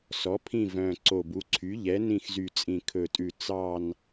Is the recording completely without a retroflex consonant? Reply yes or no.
yes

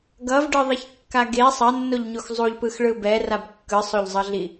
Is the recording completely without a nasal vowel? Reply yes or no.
yes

